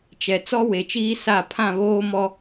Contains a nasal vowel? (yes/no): yes